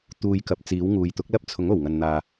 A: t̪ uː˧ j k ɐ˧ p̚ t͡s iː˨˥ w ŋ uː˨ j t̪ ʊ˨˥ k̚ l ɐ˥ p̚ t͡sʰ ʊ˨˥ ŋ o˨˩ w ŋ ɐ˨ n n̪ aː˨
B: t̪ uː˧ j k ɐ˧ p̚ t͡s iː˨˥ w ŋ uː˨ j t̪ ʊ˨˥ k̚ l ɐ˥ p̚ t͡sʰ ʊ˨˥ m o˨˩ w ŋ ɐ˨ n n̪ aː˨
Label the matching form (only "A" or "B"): A